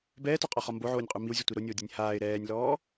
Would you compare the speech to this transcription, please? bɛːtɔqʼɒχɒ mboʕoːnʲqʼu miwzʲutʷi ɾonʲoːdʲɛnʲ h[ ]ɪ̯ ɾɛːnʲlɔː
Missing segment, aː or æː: aː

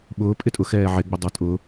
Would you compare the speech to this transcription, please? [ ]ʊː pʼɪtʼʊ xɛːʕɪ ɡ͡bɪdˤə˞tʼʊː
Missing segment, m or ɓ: ɓ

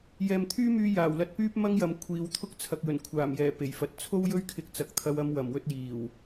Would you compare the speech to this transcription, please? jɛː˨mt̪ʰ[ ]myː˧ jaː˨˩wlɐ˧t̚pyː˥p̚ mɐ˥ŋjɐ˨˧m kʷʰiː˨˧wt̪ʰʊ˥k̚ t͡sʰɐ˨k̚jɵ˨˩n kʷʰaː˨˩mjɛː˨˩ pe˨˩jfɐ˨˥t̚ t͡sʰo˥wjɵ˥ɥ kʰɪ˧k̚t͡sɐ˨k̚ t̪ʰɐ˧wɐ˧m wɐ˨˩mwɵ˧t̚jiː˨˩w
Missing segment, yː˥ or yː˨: yː˥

